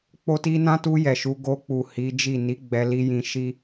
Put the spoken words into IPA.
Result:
k͡po˧ti˧ nã˦tu˧ jɛ˨ʃu˨˦ ɡo˧k͡pu˨ hi˨˦d͡ʒi˦˨ ni˨˦ ɡ͡bɛ˧li˧jĩ˧ ʃi˦

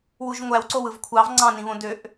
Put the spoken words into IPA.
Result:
wuʒŋʷæwǀow ɯvkʷʰɑv ŋ͡ǀɑ̃nĩβõ døʔ

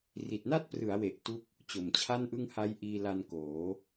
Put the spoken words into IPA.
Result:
ri˨˩t̚na˥˩t̚ prɯ˩˦a̯we˨˩ʔ tu˥˩k̚ | t͡ɕo˨˩mt͡ɕʰa˥˩nʔɯ˥˩ŋ ha˦˥jʔiː˧ la˧nkoː˩˦

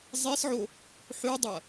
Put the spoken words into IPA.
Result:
zˤesʕo | ħʉdˤɐ

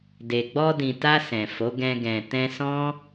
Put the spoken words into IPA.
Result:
de˨ɡ͡bɔ˧dĩ˨ta˧ sɛ̃˨fo˨˦ ɡɛ̃˧ɡɛ̃˨ tɛ̃˧sɔ̃˦

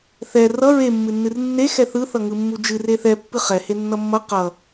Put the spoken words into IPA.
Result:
θɛ rʌ ɹemːɨnːɨr nːe xɛθɯθʌŋɯ mːud͡ʒɨr eθɛ pːɨχɛ henːʌmːʌ qʌ

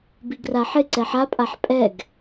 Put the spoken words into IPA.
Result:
biɡraħɪ ǀɛħa pʼaħpʼɛɡ

